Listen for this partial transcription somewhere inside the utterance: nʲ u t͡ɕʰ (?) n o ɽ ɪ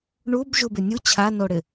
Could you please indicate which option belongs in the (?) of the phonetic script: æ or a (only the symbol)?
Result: a